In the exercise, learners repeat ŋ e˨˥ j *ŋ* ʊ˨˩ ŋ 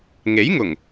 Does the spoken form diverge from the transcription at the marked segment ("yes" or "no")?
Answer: no